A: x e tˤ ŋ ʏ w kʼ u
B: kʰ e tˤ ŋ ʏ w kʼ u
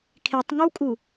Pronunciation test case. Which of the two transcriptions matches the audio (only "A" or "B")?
B